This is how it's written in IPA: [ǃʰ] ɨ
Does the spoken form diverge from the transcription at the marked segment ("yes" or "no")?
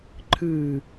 no